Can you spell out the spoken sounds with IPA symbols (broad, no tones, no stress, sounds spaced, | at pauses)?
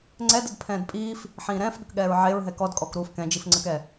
ŋ͡ǀ ɛ d ə d pʰ ɛ̃ː d pʼ iː f | ħ ĩː ɾ ɛ̃ː f ɠ ə k ɠ ɛː ɹ ʕ e ɹ ɦ ɛ k ɔ d kʼ ɔ k ɾ uː f k ɛ̃ d͡ʒ i f ŋ͡ǀ ə k ɛ